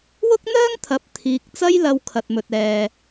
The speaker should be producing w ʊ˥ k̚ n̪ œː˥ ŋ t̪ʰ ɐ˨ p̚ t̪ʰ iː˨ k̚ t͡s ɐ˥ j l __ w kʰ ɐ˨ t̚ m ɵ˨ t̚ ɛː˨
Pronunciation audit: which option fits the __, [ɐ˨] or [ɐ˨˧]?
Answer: ɐ˨˧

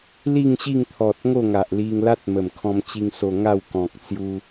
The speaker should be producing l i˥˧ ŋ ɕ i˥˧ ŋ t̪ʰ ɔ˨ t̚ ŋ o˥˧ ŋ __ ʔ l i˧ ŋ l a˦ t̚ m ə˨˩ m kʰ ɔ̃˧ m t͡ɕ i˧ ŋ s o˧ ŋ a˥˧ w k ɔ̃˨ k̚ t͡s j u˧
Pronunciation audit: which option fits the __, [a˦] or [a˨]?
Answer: a˨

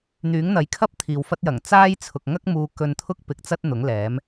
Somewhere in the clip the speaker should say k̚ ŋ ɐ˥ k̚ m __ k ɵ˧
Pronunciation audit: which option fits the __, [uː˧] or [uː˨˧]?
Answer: uː˨˧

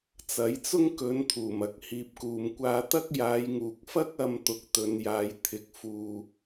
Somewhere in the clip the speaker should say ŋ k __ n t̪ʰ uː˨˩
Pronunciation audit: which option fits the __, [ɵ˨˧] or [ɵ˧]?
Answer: ɵ˨˧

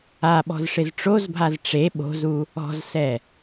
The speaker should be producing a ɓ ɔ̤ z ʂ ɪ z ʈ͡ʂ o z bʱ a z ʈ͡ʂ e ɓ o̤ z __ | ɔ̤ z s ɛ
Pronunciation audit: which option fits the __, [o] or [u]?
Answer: u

